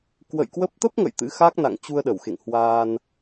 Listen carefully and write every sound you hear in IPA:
kwə̰˧˨j kwə˦˥p̚ t̪ə˦˥p̚ŋə̰˧˨j t̪ɨ̰˧˥xa˦˥k̚ na̰˧˨ŋt͡ɕu˧ə̯ɗə˧˩wxḛ˧˨ŋ hwaː˧n

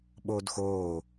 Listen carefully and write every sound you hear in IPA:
ɓoːdxoː

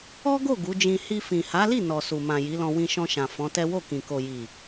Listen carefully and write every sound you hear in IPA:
ɔ˦ɡo˦˨ ɡu˨˦d͡ʒĩ˧ hi˧fĩ˨ ha˨˦li˦˨ nɔ˨su˨mã˨ ji˨˦lɔ̃˧ wĩ˧ʃɔ̃˧ʃã˨ fɔ̃˨˦tɛ˦ wo˦˨kĩ˨ ko˨ji˨

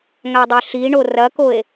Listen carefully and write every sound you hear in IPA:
ŋadˤɪɬiɳo rɐkoe̯

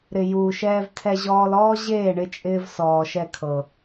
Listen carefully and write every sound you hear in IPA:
ɾɪ˨ juː˨ʃɛː˧vtʰɛ˧ʑɔː˧l ɔː˦ʑeː˦˨ɳɪ˧ t͡ʃʼɪː˧v sɔː˨ʃɛ˧kʰɤ˨

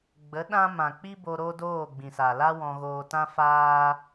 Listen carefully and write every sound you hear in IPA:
ɡ͡bə˨˦ ɗã˦ mã˨k͡pi˦bo˧ ɾo˦doː˦˨ ɡ͡bĩ˨sa˨ la˦wɔ̃˧ɣoː˧tã˦ faː˦

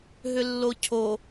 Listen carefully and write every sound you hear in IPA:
ɦʏlːocʰo

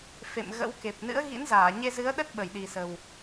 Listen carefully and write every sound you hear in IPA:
fḛ˧˨mɣə̰˧˥wke˨˩p̚ nɨ̰˧˥ə̯ɣḭ˧˥nzaː˧˩ ɲe˧zɨ˨˦ə̯ɗə˦˥t̚ ɓə˧˩jɗi˨˩sə˨˩w

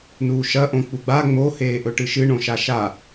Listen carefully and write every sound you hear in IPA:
nuːʃɐ ʔõk͡puɡ͡ba ŋ͡mo heːʔɵʈɨʃɨ ɳõʃaʃa

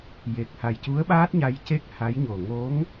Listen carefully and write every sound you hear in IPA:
je˨˩k̚ha˨˩jcu˧˥ə̯ɓaː˦˥t̚ ɲa˧jce˦˥k̚ ha˧˥jɲo˨˩ ŋo˧˥ŋ

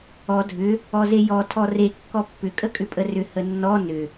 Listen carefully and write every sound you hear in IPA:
ɔ dʱʏ | ɔzejɔ tʰɔre kːɔpːʏ kʼəkʼʏpʼərʏ hənːɔ nʏ

